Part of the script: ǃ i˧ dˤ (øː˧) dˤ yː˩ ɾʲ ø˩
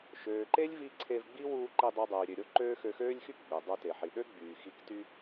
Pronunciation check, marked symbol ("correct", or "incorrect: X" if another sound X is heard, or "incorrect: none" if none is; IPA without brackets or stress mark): incorrect: ø˧